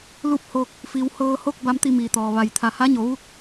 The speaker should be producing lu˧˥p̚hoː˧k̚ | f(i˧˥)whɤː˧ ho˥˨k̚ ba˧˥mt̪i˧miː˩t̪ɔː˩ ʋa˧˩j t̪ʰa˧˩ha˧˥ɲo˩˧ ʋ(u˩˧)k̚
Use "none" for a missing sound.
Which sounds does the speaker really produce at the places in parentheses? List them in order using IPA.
i˩˧, u˥˨

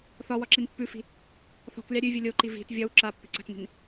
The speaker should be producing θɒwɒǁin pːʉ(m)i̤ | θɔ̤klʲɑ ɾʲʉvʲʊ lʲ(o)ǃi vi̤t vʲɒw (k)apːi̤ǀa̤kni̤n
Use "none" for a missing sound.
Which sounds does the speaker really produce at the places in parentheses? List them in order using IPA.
f, o, ǁ

